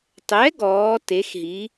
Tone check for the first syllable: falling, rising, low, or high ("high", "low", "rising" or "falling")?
rising